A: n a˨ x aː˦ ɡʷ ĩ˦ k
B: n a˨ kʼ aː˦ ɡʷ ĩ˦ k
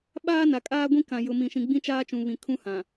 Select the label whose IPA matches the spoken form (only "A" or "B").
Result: B